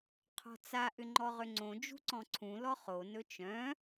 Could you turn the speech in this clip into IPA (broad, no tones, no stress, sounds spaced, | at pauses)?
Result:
qʰ ɔ̤ t͡s a ʔ ʏ ŋ͡ǃ ɔ ʁ ʏ ŋ͡ǀ õ d͡ʒ ṳ ǀ ɔ̃ ǀʰ ũ l ɔ χ o n ɵ t͡ʃ œ̃